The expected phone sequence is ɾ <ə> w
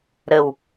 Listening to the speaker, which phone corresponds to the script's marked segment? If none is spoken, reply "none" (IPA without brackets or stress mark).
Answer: ə